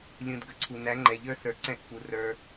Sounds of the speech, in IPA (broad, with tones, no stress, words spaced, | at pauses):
lʲũ˨d ɡə˨ǀʰu˨ næ˨˦ŋ͡ǃɛ˨ʎə˞˦sə˞˨ ǀɛ̃˦˨ʔfu˨ rə˞˧